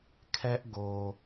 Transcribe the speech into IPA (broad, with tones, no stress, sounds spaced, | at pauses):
kʰ ɛ˦ ʔ ɡ o˨